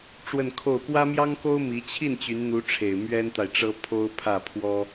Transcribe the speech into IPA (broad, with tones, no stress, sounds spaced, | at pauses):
ʈ͡ʂ w ə˥˧ n kʰ o˥˩ ʊ̯ p w ä˥ m j ɑ˥ ŋ k o˥ ʊ̯ m i˧˥ t͡ɕʰ i˥˩ n t͡ɕ y˧˥ n n̪ u˧˥ ʈ͡ʂʰ e˨˩ ɪ̯ m ɥ ɛ˥ n t̪ a˨ ɪ̯ ʈ͡ʂ ɤ˥ pʰ o˥ ʊ̯ pʰ ä˥˩ pʰ w ɔ˥